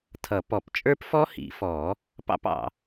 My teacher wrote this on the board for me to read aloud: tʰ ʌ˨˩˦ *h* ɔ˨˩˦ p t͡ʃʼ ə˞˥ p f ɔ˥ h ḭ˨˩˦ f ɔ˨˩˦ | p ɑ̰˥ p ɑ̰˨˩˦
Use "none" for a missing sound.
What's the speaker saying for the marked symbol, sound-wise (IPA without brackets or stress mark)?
p